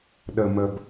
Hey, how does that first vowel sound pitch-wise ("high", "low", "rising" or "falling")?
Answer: low